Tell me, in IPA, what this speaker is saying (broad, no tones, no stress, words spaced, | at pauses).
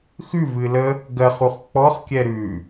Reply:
xʉvɨ lə | ɡɜχuχ k͡pɔχ kʲɛɾʉ